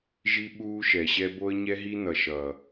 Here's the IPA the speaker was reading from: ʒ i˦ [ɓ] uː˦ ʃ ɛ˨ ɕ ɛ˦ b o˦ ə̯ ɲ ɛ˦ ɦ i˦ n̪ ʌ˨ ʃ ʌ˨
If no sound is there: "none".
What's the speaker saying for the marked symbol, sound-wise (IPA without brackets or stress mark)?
ɓ